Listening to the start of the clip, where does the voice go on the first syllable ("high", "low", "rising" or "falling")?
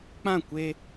falling